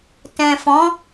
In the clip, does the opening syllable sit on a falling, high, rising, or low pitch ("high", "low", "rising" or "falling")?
low